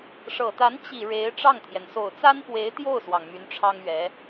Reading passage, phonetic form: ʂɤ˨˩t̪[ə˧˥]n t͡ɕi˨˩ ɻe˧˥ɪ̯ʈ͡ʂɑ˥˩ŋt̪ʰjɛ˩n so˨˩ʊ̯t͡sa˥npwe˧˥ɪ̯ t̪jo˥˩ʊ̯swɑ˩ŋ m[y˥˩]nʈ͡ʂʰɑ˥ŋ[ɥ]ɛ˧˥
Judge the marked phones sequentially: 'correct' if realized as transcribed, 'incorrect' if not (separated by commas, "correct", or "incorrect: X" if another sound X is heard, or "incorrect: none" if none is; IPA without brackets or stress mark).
incorrect: a˧˥, incorrect: y˧˥, correct